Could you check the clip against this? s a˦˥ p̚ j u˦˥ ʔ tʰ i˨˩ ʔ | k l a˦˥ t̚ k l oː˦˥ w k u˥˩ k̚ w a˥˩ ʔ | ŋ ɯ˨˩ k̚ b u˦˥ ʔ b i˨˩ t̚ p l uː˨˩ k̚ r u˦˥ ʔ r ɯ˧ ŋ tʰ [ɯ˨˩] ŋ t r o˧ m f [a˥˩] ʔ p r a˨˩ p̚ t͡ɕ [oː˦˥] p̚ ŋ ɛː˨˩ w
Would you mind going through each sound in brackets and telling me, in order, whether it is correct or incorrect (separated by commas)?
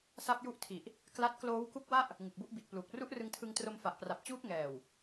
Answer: incorrect, incorrect, incorrect